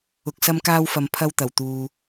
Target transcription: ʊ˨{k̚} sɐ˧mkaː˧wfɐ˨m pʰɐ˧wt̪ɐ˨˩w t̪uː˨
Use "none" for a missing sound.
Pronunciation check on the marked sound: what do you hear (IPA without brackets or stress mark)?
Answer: k̚